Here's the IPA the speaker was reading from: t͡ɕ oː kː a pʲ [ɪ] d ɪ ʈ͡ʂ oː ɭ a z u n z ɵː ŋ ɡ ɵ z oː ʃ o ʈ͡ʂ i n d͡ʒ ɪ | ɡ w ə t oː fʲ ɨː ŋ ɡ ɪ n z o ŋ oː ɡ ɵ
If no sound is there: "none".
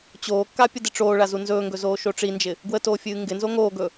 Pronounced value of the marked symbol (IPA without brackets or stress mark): ə